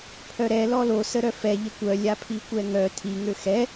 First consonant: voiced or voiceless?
voiceless